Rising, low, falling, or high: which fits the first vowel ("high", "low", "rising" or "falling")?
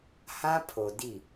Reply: high